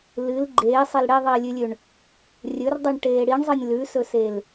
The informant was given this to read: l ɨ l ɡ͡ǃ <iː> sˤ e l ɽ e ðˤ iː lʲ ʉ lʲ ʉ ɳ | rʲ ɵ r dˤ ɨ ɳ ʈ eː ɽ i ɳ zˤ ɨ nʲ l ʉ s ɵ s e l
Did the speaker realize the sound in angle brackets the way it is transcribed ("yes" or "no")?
no